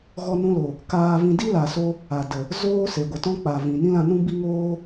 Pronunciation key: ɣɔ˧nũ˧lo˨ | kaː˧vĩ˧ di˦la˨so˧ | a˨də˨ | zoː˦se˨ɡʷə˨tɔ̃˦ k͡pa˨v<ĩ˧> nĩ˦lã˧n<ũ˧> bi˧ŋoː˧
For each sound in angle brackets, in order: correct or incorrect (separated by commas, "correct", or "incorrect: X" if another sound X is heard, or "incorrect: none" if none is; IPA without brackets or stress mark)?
incorrect: ĩ˨, incorrect: ũ˦